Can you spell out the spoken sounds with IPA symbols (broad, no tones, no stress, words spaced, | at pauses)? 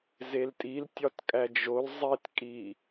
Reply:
zeltʼil tʲɒtkʼæd͡ʒol zˤitkʼi